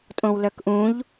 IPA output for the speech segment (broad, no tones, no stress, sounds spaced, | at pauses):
tʼ õ w l œ k ʔ ũ ʎ